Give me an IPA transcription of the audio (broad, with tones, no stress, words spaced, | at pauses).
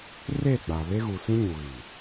re˦˨ɡ͡ba˨ βe˦ɣu˨sĩ˦ ɲu˨ɣi˨